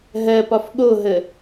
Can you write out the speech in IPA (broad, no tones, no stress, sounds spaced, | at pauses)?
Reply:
ɦ ɜ p ɒ f ɠ o ɦ ə